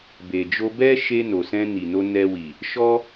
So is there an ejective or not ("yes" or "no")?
no